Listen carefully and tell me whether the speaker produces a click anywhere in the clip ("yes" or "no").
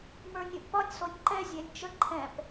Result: yes